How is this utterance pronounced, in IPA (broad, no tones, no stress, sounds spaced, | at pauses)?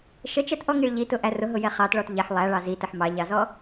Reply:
ʃ ə t͡ʃ ɛ t ʔ ɔ ŋ i ɭ ʎ i t ʊ ʔ æ r ʊ ɦ ʊ j ɛ χ ɑ t ɭ ɔ t ʎ ɛ ħ lˠ æ ɭ ɑ z i t ə ħ m ɑ ʎ ɑ z ɔ